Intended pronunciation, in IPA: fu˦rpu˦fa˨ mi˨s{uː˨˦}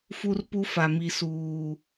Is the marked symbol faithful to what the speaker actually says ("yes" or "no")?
no